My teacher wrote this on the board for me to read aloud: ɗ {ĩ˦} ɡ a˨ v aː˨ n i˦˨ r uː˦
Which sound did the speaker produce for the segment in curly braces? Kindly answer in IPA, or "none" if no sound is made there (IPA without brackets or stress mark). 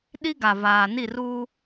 i˦